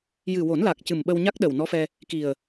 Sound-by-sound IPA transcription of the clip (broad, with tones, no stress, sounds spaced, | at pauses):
j ɨ˨˩ w o˨˩˦ n l a˨˩ k̚ c ɨ˨˩ m ɓ ə˧ w ɲ a˦˥ k̚ ɗ ə˨˩ w n ɔ˧˥ f ɛ˧ | k i˨˩ ə̯